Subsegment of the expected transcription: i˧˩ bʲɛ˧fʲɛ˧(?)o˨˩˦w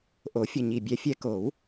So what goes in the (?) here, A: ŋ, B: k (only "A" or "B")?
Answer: B